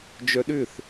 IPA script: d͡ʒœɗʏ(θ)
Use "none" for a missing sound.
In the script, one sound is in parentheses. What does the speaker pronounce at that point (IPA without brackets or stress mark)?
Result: θ